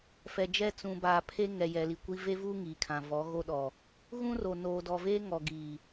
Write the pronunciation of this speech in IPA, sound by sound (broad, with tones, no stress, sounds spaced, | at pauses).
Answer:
f ɛ˨ d͡ʒ ɛ˦˨ t͡s ũ˨ b aː˨ pʰ e˦ ŋ ɛ˨ j ɛ˨ l i˨ kʷ i˦ v e˦ v u˦ ŋ iː˨ kʰ ã˨ v ɔ˨˦ ɣ o˦ ɗ ɔ˨ | ɣ ũ˦ r o˨ n oː˨ d ɔ˨ v eː˦ ŋ ɔ˨ ɡ iː˨